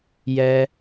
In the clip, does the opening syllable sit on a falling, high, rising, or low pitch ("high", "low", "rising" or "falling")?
low